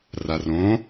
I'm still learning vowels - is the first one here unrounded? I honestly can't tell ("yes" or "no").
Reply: yes